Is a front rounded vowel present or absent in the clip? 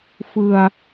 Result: absent